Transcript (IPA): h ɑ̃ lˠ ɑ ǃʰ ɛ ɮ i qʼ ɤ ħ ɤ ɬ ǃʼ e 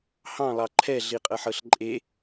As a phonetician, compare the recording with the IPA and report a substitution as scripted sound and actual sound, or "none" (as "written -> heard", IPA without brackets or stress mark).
none